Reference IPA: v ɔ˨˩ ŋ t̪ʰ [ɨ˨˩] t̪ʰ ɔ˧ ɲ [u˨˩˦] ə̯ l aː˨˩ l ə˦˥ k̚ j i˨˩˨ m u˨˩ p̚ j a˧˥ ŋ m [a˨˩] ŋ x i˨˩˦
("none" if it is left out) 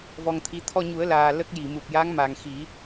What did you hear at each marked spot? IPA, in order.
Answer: i˨˩, u˨˩˦, a˨˩

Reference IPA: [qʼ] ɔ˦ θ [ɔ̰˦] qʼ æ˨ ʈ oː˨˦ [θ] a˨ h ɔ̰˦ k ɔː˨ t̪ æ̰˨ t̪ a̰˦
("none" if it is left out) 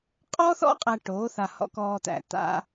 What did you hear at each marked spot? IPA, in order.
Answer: qʼ, ɔ̰˦, θ

